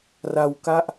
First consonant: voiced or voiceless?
voiced